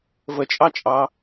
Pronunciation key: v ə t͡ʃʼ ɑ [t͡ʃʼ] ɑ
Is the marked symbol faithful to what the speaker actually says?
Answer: yes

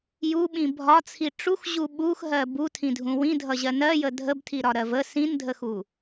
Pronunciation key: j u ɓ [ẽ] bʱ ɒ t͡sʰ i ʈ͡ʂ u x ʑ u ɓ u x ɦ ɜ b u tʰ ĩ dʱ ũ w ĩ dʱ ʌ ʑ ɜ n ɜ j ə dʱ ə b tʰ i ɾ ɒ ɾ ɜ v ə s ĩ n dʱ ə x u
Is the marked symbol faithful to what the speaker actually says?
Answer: no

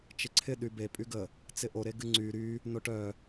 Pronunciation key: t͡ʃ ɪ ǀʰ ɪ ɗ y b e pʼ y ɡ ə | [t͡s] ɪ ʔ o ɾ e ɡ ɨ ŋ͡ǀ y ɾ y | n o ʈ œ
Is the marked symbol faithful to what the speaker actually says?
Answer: yes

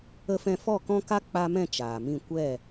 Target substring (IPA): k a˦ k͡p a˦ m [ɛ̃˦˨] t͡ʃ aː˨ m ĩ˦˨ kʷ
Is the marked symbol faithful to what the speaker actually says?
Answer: yes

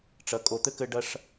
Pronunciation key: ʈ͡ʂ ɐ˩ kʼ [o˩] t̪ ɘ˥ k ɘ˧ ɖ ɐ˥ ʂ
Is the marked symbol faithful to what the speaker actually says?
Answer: yes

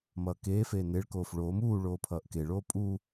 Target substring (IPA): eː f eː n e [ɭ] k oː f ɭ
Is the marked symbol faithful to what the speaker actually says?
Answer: yes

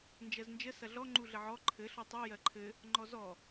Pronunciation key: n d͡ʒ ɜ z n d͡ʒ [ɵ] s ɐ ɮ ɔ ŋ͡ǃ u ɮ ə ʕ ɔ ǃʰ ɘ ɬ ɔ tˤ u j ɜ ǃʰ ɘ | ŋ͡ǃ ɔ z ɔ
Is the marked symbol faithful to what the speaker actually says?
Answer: no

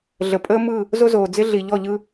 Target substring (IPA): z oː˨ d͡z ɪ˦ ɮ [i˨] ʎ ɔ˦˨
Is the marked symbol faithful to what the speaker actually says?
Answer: yes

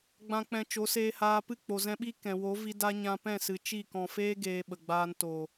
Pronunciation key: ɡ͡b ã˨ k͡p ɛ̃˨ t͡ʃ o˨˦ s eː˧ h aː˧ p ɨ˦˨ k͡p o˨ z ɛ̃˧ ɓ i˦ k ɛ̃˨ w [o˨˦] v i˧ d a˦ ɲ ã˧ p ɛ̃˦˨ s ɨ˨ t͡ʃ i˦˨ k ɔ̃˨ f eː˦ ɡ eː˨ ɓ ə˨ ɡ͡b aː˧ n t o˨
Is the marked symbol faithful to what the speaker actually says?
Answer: yes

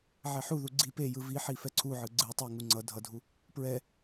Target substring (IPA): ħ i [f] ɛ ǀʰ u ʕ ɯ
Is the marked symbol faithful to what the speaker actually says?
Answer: yes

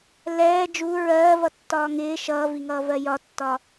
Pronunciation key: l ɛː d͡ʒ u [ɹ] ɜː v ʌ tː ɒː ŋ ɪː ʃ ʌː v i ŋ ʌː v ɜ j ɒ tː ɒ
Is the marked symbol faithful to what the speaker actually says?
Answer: yes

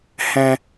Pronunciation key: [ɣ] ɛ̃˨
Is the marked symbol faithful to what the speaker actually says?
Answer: no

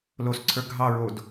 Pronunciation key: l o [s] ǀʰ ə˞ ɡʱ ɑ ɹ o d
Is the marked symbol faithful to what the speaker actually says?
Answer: yes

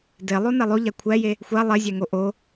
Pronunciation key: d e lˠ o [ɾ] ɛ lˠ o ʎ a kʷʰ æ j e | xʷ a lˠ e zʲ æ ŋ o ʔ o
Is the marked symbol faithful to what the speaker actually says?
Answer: no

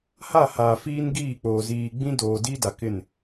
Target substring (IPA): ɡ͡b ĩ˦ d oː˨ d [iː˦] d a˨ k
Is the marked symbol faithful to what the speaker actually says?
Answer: yes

